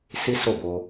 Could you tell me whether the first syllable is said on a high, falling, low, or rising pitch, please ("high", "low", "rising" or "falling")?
high